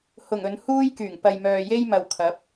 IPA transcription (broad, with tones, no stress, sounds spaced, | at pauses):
h ʊ˨˩ ŋ ɵ˨˧ n h uː˥ j k yː˨˩ ŋ p ɐ˨ j m œː˨ j e˥ j m ɐ˨ w kʰ ɐ˨˥ p̚